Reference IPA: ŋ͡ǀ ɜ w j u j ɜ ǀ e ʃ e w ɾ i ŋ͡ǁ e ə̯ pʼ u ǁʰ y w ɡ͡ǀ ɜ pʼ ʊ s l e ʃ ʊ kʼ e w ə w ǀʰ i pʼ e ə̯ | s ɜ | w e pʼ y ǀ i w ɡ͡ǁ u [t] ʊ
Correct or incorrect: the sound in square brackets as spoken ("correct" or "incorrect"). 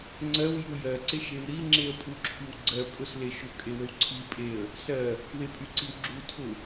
incorrect